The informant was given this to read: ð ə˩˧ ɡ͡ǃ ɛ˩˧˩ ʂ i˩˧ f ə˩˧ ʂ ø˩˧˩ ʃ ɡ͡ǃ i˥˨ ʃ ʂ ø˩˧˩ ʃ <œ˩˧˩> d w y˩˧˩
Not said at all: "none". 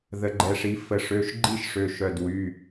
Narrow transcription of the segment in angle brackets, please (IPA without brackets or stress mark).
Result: œ˩˧˩